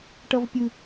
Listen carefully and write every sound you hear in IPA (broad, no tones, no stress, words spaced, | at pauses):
ʈʌvpʲɯ